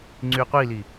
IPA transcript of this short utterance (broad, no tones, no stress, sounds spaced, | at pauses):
ŋ͡ǀ y qʷ i l i